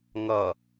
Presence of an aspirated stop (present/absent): absent